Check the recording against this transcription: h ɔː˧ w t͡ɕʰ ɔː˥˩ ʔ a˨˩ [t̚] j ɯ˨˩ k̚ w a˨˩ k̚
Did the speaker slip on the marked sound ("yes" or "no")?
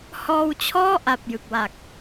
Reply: yes